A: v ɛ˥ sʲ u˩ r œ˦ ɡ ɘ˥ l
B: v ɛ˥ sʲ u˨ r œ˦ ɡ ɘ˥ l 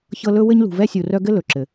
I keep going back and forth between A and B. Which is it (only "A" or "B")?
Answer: B